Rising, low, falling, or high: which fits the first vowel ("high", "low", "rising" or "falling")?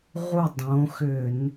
falling